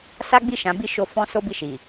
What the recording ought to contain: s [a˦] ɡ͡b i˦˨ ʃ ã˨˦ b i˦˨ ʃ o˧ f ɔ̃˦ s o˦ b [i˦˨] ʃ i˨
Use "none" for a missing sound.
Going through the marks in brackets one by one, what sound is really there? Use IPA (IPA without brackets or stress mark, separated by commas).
a˦, i˦˨